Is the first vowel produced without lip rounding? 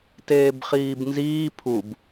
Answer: yes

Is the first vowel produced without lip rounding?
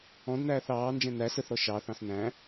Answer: no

